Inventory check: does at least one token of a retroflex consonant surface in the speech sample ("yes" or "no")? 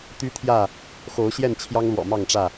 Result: yes